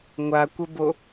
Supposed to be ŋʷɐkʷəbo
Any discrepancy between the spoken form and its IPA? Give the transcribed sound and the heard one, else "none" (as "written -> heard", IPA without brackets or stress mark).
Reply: ɐ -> a